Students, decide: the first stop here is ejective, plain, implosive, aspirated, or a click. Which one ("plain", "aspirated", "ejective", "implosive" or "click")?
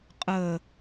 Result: ejective